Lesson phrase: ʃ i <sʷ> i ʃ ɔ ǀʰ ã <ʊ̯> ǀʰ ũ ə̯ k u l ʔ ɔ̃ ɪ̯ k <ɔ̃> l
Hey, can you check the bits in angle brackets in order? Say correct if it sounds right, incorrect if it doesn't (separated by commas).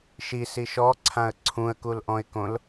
incorrect, incorrect, incorrect